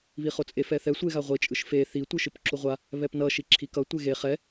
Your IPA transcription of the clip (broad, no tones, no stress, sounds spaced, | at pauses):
β i χ o t͡sʼ e f ɛ θ ɛ sʷ e ɣ a ʁʷ i t͡ʃʼ ɯ ʃ f e θ i tʷ ɯ ʃ ɯ p ǁ u ʁʷ a | β ɛ p n ʌ ʃ i ǁʰ i k ʌ tʷ e ɣ e χ ɛ